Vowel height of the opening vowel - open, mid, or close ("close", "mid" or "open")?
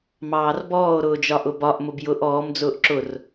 open